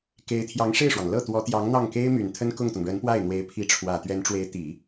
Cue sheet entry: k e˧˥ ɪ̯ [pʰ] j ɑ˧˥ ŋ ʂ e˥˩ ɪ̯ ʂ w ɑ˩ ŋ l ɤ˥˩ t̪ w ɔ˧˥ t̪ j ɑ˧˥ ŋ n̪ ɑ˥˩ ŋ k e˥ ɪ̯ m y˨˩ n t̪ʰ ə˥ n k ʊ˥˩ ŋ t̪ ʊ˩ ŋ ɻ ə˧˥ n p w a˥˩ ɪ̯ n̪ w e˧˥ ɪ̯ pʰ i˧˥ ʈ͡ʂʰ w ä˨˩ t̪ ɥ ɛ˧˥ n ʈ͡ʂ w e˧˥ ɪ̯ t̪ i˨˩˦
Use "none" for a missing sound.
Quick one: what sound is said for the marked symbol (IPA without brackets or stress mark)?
t̪ʰ